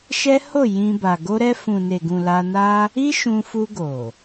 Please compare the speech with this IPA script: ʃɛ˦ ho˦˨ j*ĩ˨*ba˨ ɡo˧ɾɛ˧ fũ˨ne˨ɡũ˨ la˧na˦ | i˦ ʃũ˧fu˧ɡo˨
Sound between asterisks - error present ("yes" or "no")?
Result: yes